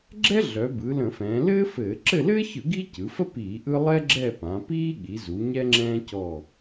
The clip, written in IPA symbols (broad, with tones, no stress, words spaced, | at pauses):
ɡ͡ǁɛ˥ ɮœ˩˧ bɯ˩˧ lə̃˧˩˧fɛ̃ː˩˧ lɘː˥ fɘː˧˩˧ ǁɘ˦˨lɘː˥çɯ˧˩˧ ɡi˥ cɯ˩˧fə˥ piː˧˩˧ʔɯ˥ lˠɛ˥ɡ͡ǁɛ˦˨ pã˩˧piː˥ɠi˩˧zu˩˧ ɲɛ˥ŋ͡ǁɛ̃ː˥cɔ˦˨